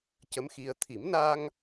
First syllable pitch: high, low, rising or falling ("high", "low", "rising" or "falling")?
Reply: rising